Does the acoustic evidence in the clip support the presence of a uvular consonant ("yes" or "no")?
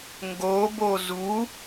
no